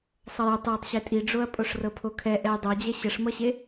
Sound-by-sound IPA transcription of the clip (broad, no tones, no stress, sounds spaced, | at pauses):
sˤ ʌ j o tˤ j e tˤ ɕ e tʼ i ɖ͡ʐ o ɐ̯ pʼ o ʂ r ɤ pʰ o kʰ ɛ ʔ ɛ j dˤ o d͡ʑ ɛ ɕ ə ʂ m ʌ ɕ e